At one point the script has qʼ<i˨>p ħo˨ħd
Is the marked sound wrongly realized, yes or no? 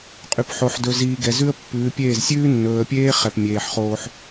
yes